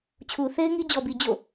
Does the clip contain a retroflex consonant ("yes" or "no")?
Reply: no